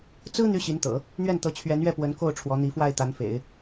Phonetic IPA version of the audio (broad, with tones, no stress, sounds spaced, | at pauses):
t͡s ɹ̩˥ n̪ y˥ ɕ i˧˥ n t̪ ɤ̰˨˩˦ | n̪ ɥ ɛ˥˩ n t̪ ɤ˧˥ t͡ɕʰ ɥ ɛ˧˥ n ɥ ɛ˥˩ p w ə˧˥ n k o˥˩ ʊ̯ ʈ͡ʂʰ w ɔ˧˥ n̪ i˧˥ f w a˥˩ ɪ̯ t̪ a˧˥ n f ḛ˨˩˦ ɪ̯